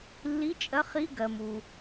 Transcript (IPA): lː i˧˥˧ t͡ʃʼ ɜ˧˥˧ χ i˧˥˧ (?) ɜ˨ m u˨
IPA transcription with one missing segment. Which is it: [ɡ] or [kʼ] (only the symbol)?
ɡ